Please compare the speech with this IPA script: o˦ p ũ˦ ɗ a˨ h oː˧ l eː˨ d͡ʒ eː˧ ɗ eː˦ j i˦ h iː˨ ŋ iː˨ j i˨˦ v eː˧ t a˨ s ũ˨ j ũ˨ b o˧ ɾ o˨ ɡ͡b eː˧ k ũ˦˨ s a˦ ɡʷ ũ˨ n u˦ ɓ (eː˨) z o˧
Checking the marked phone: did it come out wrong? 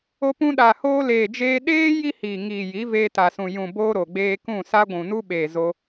no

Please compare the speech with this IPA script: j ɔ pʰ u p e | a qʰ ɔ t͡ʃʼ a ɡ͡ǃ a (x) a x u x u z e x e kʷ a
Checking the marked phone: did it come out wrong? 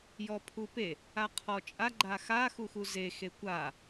no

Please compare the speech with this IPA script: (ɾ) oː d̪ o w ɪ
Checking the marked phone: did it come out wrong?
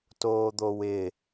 yes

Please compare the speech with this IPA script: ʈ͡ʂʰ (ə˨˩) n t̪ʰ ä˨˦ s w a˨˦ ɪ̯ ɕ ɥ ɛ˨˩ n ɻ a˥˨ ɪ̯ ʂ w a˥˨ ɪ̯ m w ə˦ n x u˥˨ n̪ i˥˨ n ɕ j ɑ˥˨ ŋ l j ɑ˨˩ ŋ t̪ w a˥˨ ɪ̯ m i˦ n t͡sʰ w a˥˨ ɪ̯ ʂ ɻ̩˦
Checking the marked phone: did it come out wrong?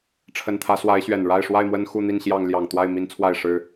no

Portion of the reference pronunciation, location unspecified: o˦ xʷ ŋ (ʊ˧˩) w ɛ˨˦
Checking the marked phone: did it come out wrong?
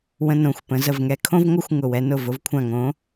no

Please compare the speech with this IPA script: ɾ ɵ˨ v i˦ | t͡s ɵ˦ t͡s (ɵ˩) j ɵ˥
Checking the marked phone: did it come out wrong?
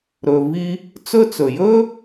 no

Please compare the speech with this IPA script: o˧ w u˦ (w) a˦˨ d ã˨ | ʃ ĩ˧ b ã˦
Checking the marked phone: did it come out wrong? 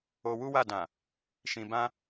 no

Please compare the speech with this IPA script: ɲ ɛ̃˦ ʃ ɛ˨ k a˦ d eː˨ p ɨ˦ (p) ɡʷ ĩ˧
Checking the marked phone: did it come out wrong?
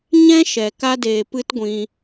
yes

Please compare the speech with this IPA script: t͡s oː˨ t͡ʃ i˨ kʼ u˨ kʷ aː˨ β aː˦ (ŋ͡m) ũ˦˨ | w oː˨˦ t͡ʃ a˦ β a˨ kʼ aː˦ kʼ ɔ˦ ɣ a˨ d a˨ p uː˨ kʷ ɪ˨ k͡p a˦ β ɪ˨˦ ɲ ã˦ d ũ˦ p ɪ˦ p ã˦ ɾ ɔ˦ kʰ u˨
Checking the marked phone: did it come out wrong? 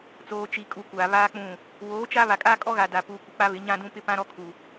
yes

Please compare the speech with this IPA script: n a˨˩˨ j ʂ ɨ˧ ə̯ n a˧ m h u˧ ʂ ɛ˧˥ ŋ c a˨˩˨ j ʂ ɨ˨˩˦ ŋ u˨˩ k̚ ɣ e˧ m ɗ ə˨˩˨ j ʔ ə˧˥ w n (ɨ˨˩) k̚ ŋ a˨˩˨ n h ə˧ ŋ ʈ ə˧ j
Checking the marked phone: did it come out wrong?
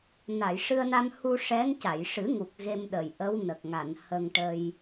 yes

